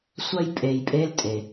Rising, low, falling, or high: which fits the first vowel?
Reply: high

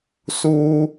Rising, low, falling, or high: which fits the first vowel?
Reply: high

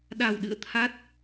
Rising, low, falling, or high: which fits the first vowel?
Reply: low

